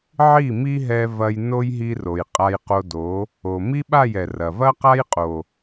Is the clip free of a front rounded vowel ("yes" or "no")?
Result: yes